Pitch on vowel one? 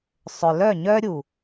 low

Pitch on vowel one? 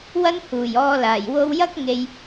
high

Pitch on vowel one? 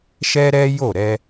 high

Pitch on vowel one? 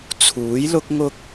rising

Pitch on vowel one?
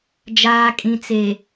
low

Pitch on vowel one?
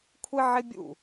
high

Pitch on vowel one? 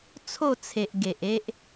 falling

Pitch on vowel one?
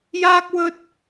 high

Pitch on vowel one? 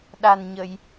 low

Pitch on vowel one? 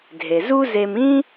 low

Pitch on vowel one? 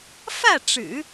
falling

